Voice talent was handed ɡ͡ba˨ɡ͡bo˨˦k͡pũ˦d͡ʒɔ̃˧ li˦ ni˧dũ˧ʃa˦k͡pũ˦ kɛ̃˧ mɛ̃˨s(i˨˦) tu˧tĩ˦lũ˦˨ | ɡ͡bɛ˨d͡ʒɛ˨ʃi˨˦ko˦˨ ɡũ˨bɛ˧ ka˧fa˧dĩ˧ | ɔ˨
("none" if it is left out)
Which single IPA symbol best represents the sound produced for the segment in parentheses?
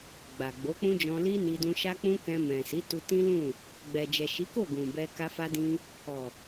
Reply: i˨˦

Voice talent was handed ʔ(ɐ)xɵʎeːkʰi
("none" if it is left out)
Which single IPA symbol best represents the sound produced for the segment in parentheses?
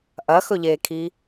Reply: ɐ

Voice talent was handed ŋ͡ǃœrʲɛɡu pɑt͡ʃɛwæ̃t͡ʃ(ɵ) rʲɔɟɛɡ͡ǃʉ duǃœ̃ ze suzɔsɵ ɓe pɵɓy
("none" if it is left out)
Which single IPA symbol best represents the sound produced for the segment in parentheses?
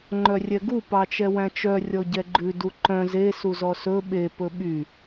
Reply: œ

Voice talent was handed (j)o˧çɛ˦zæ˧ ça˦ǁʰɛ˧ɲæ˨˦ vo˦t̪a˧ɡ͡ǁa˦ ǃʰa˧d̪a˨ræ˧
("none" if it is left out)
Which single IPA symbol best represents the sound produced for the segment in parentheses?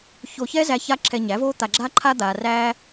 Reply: ç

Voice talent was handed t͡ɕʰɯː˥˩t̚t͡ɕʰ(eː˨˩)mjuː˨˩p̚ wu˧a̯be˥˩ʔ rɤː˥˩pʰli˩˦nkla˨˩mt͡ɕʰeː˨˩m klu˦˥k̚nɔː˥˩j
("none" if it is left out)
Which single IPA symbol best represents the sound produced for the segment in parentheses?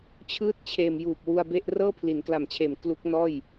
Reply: eː˨˩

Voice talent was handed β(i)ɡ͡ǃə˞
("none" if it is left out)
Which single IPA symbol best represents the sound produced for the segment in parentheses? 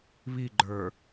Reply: i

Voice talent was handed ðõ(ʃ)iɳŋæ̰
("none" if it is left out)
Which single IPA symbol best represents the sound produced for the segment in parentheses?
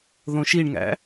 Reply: ʃ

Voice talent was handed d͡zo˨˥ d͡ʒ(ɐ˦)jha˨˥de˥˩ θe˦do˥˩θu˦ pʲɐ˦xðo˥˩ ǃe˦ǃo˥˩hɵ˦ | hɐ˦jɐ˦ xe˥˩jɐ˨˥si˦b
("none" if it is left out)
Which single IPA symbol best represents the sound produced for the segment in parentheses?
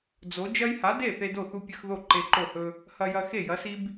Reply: ɐ˦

